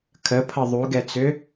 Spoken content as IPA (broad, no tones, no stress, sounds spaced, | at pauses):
kʰ ə pʰ ʌ ðˤ u ɡ ɛ t͡s ʏ